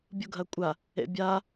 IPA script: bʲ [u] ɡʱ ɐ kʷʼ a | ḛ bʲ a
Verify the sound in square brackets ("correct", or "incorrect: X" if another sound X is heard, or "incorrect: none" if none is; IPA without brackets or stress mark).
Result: correct